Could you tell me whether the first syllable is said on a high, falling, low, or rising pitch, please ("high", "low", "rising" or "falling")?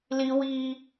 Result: high